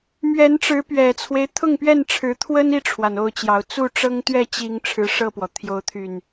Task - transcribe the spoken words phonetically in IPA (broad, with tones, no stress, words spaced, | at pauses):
mɥɛ˨˦nʈ͡ʂɻ̩˨˦pɥɛ˨˩t͡sʰwe˦ɪ̯ t̪ʰʊ˥˨ŋpɥɛ˥˨nʈ͡ʂʰɻ̩˨˦ t̪ʰwə˦ni˥˨ʈ͡ʂʰwa˩n o˥˨ʊ̯t͡ɕjɑ˨˦ʊ̯ t͡su˥˨ʈ͡ʂɤ˦ŋ t̪ɥɛ˥˨t͡ɕi˨˦ŋ ʈ͡ʂʰɻ̩˨˦ʂɤ˥˨pwɔ˩ t̪ʰjo˨˦ʊ̯t̪ʰy˨˩n